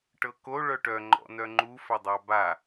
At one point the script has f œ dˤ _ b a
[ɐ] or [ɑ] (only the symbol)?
ɑ